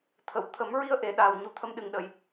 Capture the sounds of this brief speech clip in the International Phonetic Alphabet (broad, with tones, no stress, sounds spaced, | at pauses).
t̪ʰ ə˨˩˨ w t̪ʰ ə˨˩˦ m ɹ i˧ ə̯ ʔ e˨˩˨ ɗ aː˨˩ w ɲ u˨˩˦ t̪ʰ ə˧ m ɗ ɨ˨˩˨ ŋ ɗ ə˨˩˨ j